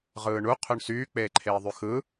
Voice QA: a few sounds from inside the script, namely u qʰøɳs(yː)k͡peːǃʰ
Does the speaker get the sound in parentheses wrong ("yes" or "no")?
no